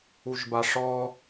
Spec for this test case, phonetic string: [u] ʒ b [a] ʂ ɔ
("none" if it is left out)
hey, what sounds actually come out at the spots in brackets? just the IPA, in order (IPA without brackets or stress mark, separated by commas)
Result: u, a